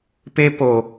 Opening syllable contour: high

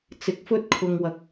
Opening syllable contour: rising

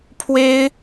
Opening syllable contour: high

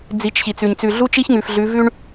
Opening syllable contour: rising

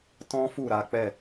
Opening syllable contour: high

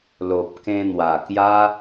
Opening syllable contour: low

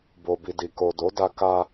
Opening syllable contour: low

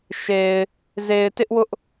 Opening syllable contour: low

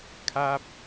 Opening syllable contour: falling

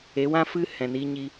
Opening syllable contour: rising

